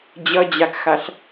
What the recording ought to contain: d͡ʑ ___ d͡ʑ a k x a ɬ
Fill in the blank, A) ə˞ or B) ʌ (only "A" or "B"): B